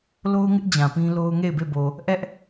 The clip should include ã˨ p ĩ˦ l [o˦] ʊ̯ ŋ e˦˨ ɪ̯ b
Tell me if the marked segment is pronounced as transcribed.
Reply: yes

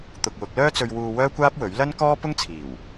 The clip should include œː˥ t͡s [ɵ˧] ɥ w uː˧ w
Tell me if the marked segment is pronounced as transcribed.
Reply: yes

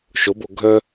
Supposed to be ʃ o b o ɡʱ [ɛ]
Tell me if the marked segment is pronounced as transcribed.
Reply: no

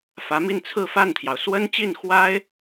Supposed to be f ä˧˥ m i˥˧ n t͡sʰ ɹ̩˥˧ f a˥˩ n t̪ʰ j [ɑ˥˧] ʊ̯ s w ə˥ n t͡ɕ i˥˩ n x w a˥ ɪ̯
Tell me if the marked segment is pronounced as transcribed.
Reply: no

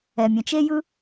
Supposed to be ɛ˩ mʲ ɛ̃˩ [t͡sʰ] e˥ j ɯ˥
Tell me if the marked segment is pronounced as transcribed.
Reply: no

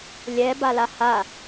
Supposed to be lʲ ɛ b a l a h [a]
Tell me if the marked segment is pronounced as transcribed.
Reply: yes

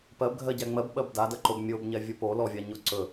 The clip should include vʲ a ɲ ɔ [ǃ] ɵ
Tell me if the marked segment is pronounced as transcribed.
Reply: no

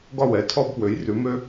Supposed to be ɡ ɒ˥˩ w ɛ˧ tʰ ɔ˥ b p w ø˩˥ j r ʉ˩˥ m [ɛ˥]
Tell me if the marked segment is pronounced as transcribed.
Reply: no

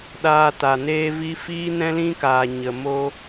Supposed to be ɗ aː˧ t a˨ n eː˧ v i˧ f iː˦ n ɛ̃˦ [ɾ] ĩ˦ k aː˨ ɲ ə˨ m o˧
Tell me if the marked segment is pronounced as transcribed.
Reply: no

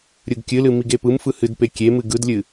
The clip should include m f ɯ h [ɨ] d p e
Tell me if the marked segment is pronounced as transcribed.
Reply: yes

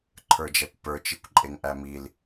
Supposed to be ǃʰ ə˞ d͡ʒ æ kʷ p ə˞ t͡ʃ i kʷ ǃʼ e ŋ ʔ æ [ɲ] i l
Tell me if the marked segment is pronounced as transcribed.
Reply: no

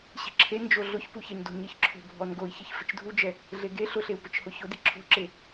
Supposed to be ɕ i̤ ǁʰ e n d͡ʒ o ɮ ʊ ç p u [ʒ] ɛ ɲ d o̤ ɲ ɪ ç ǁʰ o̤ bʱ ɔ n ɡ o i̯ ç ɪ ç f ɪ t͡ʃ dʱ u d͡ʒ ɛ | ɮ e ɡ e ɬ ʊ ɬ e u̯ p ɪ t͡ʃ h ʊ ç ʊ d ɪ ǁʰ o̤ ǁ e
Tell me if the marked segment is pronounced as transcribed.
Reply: no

